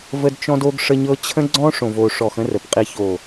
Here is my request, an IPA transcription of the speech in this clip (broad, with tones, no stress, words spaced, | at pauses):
və˦dt͡ʃɔ̃˦d o˦ɡʂə˦ɲɤ˦ t͡ɕʰə̃˦ɡ͡ǀɔ̃˦ʂõ˨vo˨ ʂɔ˨xə̃˦ rə˨p qʼi˨ço˨